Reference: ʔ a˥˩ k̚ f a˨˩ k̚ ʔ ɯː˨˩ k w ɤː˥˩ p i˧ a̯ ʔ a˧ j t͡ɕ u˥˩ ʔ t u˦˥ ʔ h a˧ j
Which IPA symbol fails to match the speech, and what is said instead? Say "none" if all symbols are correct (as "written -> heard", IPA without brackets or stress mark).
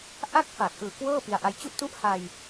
none